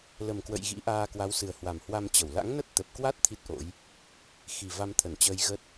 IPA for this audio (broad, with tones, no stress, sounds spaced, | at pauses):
l ə˨˩ m k w ə̰˧˨ j ɣ ḭ˧˥ ʔ aː˧ k w a˨˦ w s ɨ˨˩ ə̯ h w a˨˩ m h w a˧ m t͡ɕ ə˧˩ w l a̰˧˥ ŋ n ə˦˥ t̚ t̪ ə˨˩ p̚ k w a˦˥ t̚ t̪ʰ i˦˥ t̚ ʔ o̰˧˥ j | x i˨˩ v a˧ m t̪ʰ ə˧˩ n t͡ɕ əː˧ j ɣ ə˦˥ t̚